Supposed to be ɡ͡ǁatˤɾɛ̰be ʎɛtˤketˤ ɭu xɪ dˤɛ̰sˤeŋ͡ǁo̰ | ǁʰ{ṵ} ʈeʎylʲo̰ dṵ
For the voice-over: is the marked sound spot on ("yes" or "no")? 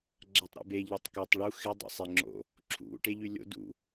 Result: yes